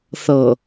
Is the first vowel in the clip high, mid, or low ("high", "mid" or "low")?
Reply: mid